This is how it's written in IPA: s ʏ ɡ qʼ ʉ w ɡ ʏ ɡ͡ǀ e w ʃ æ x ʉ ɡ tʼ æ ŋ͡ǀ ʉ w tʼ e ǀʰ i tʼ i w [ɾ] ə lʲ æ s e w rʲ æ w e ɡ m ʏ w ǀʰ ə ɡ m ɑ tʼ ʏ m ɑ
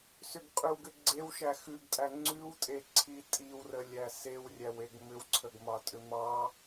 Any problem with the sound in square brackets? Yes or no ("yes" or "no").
yes